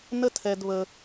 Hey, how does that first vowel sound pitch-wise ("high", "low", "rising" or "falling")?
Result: high